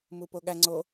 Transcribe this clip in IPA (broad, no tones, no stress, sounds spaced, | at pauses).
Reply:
m u p o ɠ æ ŋ͡ǀ o